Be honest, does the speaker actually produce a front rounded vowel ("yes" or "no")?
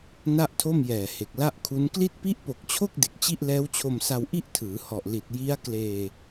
no